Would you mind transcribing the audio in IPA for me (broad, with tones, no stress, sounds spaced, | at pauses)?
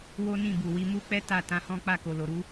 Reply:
w o˦ n ĩ˦˨ b u˨ w i˧ m u˦ k͡p ɛ˦ t a˦˨ t ã˨˦ h ɔ̃˦ k͡p a˦˨ k o˨ l o˨ ɾ u˨˦